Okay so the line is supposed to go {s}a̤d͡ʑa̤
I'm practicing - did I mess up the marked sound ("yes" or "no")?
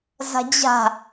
yes